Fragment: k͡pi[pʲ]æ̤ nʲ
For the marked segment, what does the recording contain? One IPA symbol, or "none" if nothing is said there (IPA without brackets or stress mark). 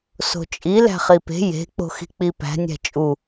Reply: p